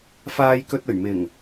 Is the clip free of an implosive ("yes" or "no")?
yes